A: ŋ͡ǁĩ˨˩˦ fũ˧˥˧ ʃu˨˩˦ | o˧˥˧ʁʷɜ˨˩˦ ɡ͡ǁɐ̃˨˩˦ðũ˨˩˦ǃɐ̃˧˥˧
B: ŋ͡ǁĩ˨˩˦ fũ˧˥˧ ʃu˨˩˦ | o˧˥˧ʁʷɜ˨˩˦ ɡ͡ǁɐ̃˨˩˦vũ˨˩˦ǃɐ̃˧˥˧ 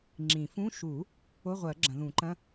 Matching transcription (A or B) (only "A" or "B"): A